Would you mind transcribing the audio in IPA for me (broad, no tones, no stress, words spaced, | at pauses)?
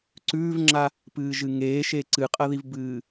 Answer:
ǀʉːvŋ͡ǁa | pɨːʒɨŋeːʃe ǀɨqʼɐðivbɨː